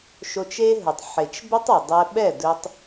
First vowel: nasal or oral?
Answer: oral